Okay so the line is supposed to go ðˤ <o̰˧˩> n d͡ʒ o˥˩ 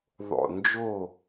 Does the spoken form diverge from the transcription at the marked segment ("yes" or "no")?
no